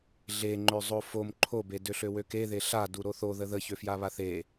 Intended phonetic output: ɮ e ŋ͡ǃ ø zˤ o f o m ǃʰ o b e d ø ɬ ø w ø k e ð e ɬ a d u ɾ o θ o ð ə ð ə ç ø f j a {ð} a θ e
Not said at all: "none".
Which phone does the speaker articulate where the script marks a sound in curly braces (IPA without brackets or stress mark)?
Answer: β